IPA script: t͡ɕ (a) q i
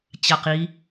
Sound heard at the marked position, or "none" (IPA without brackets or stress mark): a